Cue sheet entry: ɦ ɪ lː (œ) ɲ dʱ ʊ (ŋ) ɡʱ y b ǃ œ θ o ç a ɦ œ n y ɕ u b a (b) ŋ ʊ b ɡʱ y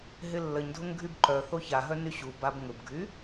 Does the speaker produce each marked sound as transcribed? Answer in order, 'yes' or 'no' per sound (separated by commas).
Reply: no, yes, yes